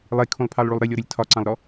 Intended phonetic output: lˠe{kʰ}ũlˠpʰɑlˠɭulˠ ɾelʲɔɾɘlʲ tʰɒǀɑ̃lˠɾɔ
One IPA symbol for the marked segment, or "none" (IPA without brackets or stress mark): kʰ